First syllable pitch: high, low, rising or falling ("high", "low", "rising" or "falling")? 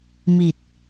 low